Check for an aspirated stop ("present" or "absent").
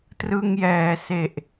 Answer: absent